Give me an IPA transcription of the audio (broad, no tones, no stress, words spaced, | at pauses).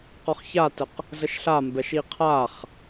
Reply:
qɔχçatəq | zəʃɬambɛʃ iqʰaχ